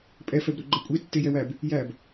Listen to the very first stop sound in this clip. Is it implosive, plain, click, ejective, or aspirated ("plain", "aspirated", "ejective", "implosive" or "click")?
ejective